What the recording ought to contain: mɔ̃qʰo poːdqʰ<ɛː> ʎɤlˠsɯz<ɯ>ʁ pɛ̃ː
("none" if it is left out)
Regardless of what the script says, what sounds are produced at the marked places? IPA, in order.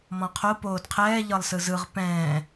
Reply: ɛː, ɯ

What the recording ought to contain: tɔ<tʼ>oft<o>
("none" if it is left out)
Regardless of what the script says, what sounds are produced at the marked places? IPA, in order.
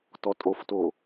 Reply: tʼ, o

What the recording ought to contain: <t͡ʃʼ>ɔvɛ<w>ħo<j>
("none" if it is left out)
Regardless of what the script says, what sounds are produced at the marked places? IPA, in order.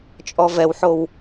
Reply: t͡ʃʼ, w, w

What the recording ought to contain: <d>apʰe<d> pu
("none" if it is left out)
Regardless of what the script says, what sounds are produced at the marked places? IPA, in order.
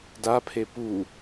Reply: d, none

